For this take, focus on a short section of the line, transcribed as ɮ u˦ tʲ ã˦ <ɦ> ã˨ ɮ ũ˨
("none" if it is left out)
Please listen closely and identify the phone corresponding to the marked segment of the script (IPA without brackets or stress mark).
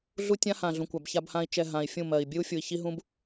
h